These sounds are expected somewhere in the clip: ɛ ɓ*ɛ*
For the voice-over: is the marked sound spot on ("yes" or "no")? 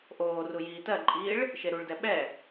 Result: yes